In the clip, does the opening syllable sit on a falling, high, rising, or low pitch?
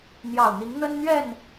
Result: low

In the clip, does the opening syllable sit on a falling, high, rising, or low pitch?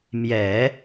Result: low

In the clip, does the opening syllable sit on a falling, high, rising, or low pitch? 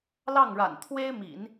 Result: falling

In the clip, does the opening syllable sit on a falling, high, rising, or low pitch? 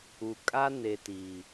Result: low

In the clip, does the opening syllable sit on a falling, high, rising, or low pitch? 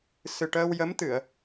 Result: low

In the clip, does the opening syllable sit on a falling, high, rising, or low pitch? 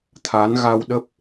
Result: rising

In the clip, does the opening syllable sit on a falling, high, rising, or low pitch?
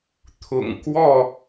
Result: low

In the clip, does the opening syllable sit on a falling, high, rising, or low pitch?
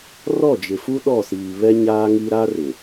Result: falling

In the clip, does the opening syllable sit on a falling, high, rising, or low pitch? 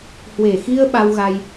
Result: low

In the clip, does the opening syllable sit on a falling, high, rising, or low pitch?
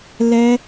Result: high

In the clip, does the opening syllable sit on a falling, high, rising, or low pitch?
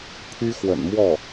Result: high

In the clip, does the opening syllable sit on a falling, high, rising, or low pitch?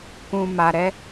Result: low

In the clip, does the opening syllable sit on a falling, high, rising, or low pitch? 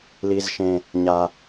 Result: low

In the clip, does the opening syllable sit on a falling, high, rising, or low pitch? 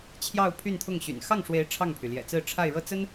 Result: falling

